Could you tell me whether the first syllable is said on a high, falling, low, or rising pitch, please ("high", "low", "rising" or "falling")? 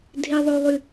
high